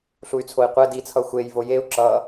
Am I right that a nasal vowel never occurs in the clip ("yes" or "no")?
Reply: yes